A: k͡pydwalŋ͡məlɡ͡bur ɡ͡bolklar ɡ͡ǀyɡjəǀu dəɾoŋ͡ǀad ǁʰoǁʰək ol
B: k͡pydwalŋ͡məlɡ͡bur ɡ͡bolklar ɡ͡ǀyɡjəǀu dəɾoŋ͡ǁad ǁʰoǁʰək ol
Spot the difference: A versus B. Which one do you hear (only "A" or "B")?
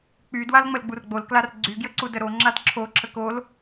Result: B